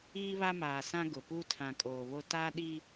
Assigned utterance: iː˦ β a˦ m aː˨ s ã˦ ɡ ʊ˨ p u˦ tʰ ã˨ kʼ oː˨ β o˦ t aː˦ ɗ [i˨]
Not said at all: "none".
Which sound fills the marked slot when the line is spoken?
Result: i˦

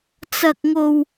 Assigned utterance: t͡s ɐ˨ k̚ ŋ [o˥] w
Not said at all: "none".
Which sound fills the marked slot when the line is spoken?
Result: o˨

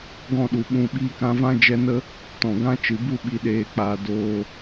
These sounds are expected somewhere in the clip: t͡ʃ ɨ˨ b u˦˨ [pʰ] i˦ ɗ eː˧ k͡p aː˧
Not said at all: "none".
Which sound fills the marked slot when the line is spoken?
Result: ɓ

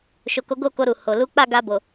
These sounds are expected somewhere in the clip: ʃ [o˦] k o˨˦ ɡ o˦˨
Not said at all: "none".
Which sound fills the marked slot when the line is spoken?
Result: o˨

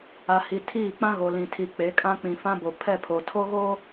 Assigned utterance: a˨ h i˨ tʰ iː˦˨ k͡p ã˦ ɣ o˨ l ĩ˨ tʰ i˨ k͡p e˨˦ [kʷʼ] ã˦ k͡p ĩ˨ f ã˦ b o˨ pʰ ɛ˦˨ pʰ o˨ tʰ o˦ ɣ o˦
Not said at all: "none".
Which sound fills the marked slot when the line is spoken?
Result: kʼ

